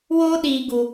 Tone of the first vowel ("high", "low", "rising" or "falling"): high